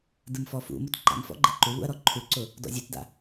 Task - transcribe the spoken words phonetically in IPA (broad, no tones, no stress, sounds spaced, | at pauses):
d ɯ m f ɔ f ṵ m ʊ t ǃ a̰ m f ɔ̰ ɡ͡ǃ ɛ ǃ u β ṵ ɐ̯ ɾ ɔ ǃʰ u ǀ ʊ | d ɔ̰ zʲ u t d a̰